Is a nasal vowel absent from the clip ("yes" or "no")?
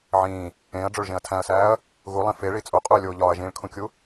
no